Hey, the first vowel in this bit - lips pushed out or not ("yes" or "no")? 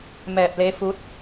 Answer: no